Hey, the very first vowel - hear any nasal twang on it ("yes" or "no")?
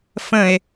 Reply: yes